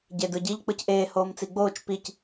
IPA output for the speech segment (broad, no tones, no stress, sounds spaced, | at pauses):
ɟ e d ɯ ɟ i ʎ k͡p ɯ c ʔ eː h oː m t͡s i ɡ͡b oː t͡ʃ p i c